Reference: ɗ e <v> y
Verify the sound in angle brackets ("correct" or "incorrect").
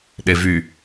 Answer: correct